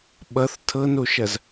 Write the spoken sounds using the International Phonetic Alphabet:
ɓʌθ tʰɤnoʃɐz

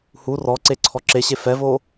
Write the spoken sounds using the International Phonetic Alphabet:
hu rɔǀe ǀʰɔǁeɕe fɛvo

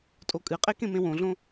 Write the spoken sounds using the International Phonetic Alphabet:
tʼokʼɨqʼekẽ mẽwõɮõ

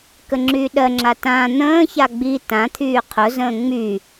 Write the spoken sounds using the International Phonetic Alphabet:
kəŋ͡ǁyːɗɜŋ͡ǁa tã n̪ə̃ːça ɡ͡bi tãt̪ʰyː qʰʊzə̃ː ŋ͡my

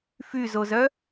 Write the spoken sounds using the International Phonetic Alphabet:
fyzozœ

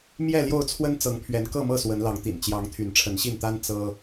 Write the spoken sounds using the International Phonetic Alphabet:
mjɛ˥˨ljo˥˨ʊ̯t͡sʰwə˦n t͡sɤ˨˦ŋpʰɥɛ˨˦n kɤ˥˨mɤ˥˨ swə˨˦nlɑ˨˦ŋt̪ḭ˨˩n t͡ɕjɑ˨˦ŋ t̪ʰy˨˦nʈ͡ʂʰə˨˦nɕi˥˨nt̪a˦n t͡sɤ˦

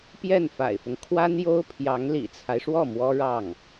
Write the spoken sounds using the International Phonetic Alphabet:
pjɛ˥˩nfa̰˨˩ɪ̯fʊ˦ŋ kʰwa˥n jo˥ʊ̯pʰjɑ˧˥ŋ lḭ˨˩t͡sʰa˦ɪ̯ʂwɔ˥˩ mwɔ˥ ɻɑ˥˩ŋ

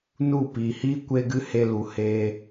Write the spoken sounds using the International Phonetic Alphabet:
nu˦˨piː˨hiː˦ kʷe˦ɡɨ˦ he˧ lu˨ heː˧

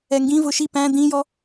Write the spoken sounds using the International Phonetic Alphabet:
ɛŋɡĩvʊ ʃi pæ̃ d̪ĩjɔ

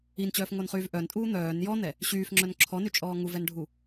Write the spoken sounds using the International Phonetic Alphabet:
int͡ɕœːfŋonχyːv ʔœntʼuː n̪œːn jɔn̪ɛ | ɕyːfŋ͡ǁœn ǁʰɔnyt͡ʃʼɔː ŋuvɛnɖʱu

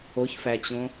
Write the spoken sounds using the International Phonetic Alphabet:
oçfæt͡ɕõ

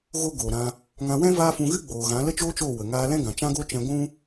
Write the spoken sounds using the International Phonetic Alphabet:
ɣo˦ɡoː˨ɾã˧ | ŋã˧wɛ̃˦ vaː˦ fũ˧ɣɨ˦ ɡ͡boː˨ɣã˨˦ lə˦t͡ʃoː˦t͡ʃoː˦˨ wə˨ŋaː˧ lɛ̃˦ɡã˨t͡ʃã˦ɡo˦ t͡ʃɛ̃˧ ɡʷũ˦

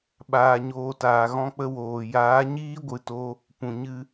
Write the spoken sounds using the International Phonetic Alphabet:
ɓaː˧ɲoː˧taː˨ ɣɔ̃˦k͡pə˦woː˨ jaː˨˦ɲiː˦ɡʷɨ˨to˧ | pũ˨ɲɨ˦

